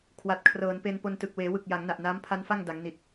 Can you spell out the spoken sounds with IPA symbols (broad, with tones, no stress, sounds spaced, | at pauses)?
kʰ w a˨˩ t̚ kʰ r ɤː˩˦ n p e˧ n p o˧ n t ɯ˨˩ k̚ w eː˩˦ w ɯ˨˩ k̚ j a˩˦ ŋ n a˨˩ ʔ n aː˦˥ m pʰ a˦˥ n f a˥˩ ŋ d a˩˦ ŋ n i˨˩ t̚